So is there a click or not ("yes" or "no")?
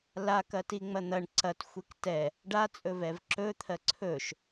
yes